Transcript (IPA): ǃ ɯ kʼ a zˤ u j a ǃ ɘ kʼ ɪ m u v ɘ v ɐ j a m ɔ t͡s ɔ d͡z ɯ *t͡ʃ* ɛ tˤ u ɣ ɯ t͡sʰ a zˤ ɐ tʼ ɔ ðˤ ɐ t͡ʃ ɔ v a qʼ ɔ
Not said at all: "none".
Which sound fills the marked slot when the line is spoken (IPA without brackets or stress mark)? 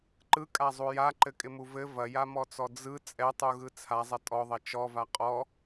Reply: t͡sʼ